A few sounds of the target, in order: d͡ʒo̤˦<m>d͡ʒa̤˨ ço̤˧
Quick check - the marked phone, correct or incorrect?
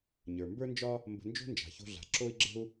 incorrect